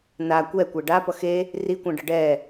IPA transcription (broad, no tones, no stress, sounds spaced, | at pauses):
n a kʷ ɛ kʷ ɛ ɖ a p ʌ x e | r i kʷ ã ɖ ʌ ɖ ɛ